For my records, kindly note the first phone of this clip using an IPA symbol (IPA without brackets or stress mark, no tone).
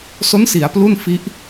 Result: s